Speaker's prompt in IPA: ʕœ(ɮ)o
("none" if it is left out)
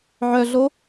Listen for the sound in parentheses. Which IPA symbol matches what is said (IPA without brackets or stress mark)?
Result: ɮ